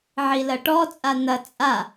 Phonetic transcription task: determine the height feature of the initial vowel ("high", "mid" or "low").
high